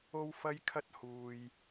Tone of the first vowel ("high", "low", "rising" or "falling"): high